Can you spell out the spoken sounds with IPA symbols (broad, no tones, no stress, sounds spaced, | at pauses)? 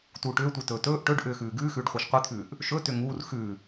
t uː ʈ ʏː tʷ i t ɵː t ɵː ʔ ʈ ɵ ɖ ʔ ʏː x ʉː ɡ ʉː x ʉː ɖ χʷ e ʃ qʷ i t̪ʰ ʉː ʔ | ʃ ɵ t ʏ ŋ uː r x ʉ